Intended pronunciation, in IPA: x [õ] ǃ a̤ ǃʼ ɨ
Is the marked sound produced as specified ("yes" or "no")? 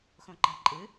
yes